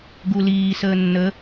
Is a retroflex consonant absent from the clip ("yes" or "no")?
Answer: yes